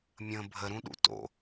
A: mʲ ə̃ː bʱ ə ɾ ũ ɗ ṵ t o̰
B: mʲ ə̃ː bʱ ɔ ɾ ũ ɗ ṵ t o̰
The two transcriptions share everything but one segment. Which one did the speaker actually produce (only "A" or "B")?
A